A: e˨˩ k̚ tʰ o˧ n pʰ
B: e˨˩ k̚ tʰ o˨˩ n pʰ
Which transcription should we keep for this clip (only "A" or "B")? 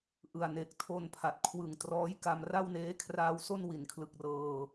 A